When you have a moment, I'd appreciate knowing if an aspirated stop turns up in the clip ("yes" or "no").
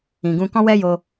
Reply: no